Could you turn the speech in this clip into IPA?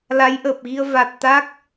l a˨˦ j ʔ əː˨˩ p̚ ɣ i˧ ə̯ v a˨˩ t̚ t̪ a˦˥ k̚

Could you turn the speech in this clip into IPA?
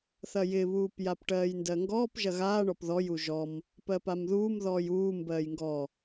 θ ɐ j ɪ β uː p j a p ʈ ɜː j n d ɜ ŋ ɡ ɔː p ʒ ɐ ɣ aː ɳ ɔ p ð ɔ j u ʒ ɔ m | p ɜ p a m ð uː m ð ɔː j uː m b ɜː j ŋ ɡ ɔ

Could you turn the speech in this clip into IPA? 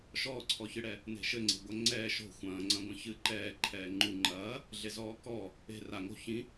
ʃ ɔː ǀʰ ɔ ç ɨ ɽ ɛ | n e̤ ʃ ɘ ŋ͡ǀ e̤ ɡʷ ɐ ŋ͡ǀ ɛː ʃ o̤ xʷ ɐ̃ː ŋ͡ǀ ɐ̃ ɡʷ ɐ̃ ç ɨ ǃ ɛː ǃʰ ɛː ŋ͡ǃ u ŋ͡ǃ ɐː | ɮ e z ɔː k ɔ | e̤ r a ŋ o̤ ç ĩ

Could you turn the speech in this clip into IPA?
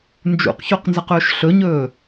n d͡ʒ ṵ q ç o q n z ɐ q ɵː ʃ ɬ ɵ ɲ ɵː

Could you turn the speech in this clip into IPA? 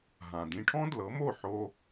ɦ ã˩ d ĩ˧ ʈʰ ɔ̃˥ d l ɤ˩˥ m o˥˩ ħ o˧

